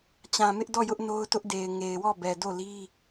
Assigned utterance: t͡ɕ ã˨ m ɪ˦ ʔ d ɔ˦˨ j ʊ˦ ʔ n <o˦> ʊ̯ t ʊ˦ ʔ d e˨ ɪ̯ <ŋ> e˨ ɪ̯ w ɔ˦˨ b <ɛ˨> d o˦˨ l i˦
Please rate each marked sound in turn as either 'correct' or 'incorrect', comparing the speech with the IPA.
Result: correct, correct, correct

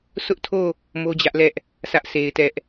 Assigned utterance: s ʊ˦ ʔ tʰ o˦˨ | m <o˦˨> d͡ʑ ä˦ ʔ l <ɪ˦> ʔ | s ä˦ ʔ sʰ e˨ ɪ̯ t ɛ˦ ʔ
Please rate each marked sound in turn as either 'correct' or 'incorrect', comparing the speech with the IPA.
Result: incorrect: o˦, incorrect: ɛ˦

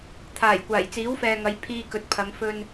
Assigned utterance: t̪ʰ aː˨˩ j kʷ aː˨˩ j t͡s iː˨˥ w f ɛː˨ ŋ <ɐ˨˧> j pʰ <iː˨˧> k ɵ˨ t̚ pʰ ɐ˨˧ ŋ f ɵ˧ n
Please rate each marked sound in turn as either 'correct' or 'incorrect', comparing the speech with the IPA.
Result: correct, incorrect: iː˧

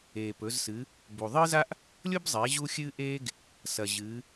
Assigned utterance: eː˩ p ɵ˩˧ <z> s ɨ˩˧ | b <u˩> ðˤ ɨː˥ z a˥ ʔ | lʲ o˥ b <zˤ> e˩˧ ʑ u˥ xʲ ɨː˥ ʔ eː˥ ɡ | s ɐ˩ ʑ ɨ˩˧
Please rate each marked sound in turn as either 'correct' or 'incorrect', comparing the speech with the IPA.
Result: correct, correct, correct

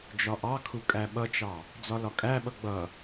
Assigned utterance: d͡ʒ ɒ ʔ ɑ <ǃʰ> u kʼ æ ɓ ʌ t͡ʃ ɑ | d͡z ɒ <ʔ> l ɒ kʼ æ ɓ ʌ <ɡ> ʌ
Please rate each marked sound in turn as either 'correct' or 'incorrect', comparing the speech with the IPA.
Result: incorrect: kʰ, incorrect: none, incorrect: ɡ͡b

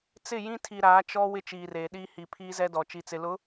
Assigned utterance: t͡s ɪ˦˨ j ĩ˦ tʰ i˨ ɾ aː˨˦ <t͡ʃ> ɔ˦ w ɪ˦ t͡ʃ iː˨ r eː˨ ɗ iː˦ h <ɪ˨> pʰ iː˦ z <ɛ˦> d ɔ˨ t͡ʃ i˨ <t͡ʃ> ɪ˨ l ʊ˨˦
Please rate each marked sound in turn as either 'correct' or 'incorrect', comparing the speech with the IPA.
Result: correct, incorrect: i˨, correct, incorrect: t͡s

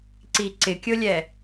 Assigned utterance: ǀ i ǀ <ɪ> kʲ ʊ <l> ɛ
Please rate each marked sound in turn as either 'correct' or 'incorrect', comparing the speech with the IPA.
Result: correct, incorrect: lʲ

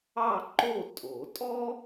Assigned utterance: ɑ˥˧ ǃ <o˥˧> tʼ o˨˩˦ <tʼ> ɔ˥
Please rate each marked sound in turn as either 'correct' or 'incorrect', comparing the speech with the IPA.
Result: correct, correct

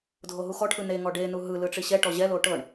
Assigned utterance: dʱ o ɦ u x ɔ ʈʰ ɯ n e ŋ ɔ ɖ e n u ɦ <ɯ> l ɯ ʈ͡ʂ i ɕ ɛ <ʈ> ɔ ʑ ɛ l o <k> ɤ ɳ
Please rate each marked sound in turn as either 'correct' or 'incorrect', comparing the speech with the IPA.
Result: correct, correct, incorrect: ʈ

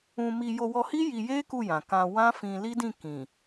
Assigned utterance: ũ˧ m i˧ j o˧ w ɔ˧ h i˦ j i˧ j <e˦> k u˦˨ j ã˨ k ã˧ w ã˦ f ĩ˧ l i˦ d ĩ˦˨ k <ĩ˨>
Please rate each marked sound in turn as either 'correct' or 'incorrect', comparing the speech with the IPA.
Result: correct, correct

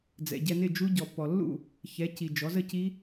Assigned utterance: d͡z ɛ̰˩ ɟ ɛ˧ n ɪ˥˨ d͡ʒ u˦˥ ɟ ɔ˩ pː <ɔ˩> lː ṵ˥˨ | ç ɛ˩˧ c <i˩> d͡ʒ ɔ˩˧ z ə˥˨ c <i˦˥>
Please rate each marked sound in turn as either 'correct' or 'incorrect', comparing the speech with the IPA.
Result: correct, correct, correct

